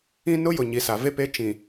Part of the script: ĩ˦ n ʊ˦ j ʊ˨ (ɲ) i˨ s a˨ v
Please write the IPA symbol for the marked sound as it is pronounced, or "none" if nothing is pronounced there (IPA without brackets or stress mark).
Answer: ɲ